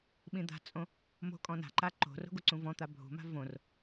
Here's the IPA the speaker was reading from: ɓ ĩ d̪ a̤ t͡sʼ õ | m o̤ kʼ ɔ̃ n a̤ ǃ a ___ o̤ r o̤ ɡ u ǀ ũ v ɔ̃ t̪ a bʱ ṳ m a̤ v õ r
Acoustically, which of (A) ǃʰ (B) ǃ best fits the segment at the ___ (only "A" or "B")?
B